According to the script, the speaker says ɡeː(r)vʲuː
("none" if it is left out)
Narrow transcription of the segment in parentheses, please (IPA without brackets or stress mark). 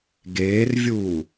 r